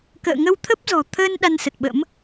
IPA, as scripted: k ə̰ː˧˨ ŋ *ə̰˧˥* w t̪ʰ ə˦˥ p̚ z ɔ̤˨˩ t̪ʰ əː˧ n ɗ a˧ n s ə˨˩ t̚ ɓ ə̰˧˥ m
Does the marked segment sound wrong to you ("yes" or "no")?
yes